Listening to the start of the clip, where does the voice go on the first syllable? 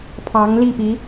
rising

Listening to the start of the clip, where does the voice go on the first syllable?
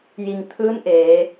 low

